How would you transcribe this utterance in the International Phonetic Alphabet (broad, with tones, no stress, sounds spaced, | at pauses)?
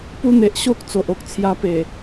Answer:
p u˦ n̪ e˨ ʔ ɕ o˦ k̚ t͡s o˨ ʔ o˦ k̚ t͡sʰ j a˧ p e˨˩